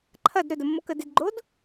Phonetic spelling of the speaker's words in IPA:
ǃʰ ɐ d ɾ ɵ d ə mː o k ə d ɪ d ɡ͡ǃ o d

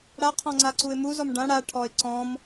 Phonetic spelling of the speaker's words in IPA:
ɽ a qʰ ɔ̃ ŋ͡ǀ a ǀ u ɪ̯ m u z ɔ m ɖ ã ɽ a ʈʰ ɔ ɪ̯ ǀ ɔ̃ m

